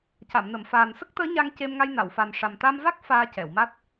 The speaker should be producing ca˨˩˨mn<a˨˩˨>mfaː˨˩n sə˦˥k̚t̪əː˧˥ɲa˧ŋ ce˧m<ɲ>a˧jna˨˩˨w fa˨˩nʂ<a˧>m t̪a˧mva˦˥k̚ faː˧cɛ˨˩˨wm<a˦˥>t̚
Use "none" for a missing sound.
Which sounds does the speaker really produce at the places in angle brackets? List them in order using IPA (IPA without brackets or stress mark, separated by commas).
ə˨˩˨, ŋ, a˨˩, a˦˥